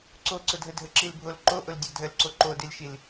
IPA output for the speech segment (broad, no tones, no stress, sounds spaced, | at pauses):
ǀ o ǀ ʊ dʱ ə dʱ ə ǁ i l bʱ o l ǃ o ʔ ʊ l dʲ ɔ dʱ ə l ǀ o ǃ o d i l ʃ i l